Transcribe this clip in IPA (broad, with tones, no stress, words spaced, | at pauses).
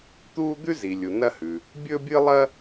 t̪u˥ d̪ʉ˥zi˩lʲu˩ nɐ˥hʉ˩ | bʲɵ˥bʲɨ˥lˠɐ˥